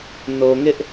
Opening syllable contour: low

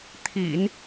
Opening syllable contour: low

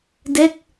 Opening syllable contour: falling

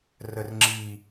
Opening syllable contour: low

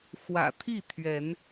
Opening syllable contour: low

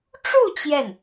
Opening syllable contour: falling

